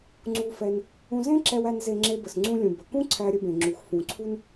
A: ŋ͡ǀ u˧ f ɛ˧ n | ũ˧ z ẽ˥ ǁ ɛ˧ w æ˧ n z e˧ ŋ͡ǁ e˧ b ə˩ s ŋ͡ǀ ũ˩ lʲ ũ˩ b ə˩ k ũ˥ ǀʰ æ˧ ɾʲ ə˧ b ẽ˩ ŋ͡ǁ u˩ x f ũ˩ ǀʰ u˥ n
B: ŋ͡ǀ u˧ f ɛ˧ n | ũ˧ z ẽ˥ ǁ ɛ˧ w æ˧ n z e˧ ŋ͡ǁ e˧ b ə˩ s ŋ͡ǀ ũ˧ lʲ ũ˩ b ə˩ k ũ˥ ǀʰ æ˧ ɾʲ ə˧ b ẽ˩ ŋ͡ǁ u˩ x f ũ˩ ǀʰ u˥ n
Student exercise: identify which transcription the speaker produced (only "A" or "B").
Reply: B